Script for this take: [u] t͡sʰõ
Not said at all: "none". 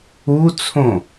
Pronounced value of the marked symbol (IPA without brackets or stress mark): u